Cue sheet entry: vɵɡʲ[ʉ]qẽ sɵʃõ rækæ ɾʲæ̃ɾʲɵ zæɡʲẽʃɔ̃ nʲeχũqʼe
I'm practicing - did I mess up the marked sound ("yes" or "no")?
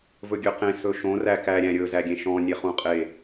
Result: yes